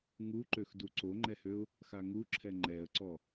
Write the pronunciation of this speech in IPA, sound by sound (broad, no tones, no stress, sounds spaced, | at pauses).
ŋ u ǃ ø x d u ǀ o ŋ͡ǃ ɛ h ø ʊ̯ | x a ŋ u ǁʰ ɛ ŋ͡ǃ ɛ ə̯ ǀ ɔ